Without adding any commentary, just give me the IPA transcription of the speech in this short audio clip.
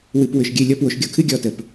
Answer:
w ɨ˨ p w ʏ˨ ʃ ɡʲ ɨ˦˨ lʲ ɔ˦ p w o˨ ʃ ɡʲ o˦ kʰ ɨ˦ ɡʲ ɔ˦˨ t ə˨ p

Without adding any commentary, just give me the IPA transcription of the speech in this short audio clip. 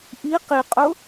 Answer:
ʔ i q i qʼ ʊ

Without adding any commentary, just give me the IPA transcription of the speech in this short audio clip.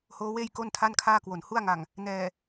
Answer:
h oː˦˥ w eː˥˩ j k o˥˩ n tʰ a˥˩ n kʰ aː˥˩ k w o˨˩ n h u˥˩ a̯ ŋ a˨˩ ŋ | n ɛː˨˩

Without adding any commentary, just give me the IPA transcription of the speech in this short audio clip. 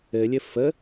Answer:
ɘ lʲ ɘ f ə

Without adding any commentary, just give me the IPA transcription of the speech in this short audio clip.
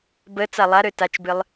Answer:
b ə t͡s a lˠ a ɾ ø t a t͡ʃ b ɨ lˠ

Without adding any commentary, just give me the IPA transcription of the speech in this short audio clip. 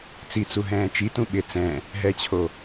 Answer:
t͡s i t͡s u ɦ ɛ̃ː t͡ʃ i t ũ ɓ ɪ t͡s ɛ̃ | ɦ ɛ t͡ɕʰ o

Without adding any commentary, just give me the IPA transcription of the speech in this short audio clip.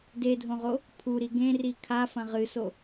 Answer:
d e dʱ õ ʁ o | pʰ u ɾ i ɡ ẽ r i kʰ a f ɐ̃ ʁ ɨ s o

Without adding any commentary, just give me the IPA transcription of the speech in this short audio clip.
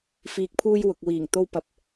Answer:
f iː˨ k̚ pʰ uː˧ j w ʊ˨ k̚ w iː˨˩ ŋ t̪ o˧ w p ɐ˨ p̚

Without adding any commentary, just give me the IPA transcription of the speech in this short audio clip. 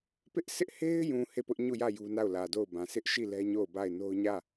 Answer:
p ɪ˦ ʔ sʰ ɪ˦ ʔ h e˦ ɪ̯ j ũ˨ h e˦˨ p ʊ˦ ʔ ɲ u˦˨ j ä˦˨ j u˦ n a˦˨ ʊ̯ l ä˨ d o˦˨ ʊ̯ b ã˨ sʰ ɪ˦ ʔ ʃ i˦˨ l ɛ˦ ɲ o˦˨ ʊ̯ b a˦˨ ɪ̯ n o˦ ʊ̯ ɲ ä˦˨

